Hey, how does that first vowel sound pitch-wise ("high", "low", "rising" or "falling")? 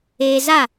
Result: high